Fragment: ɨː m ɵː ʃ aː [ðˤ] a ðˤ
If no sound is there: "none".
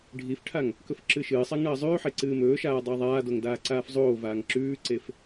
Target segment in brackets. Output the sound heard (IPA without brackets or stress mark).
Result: dˤ